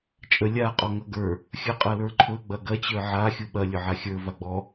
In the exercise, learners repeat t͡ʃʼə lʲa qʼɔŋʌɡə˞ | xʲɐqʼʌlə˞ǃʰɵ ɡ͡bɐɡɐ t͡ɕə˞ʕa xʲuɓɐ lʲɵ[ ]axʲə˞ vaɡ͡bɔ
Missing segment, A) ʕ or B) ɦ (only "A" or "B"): A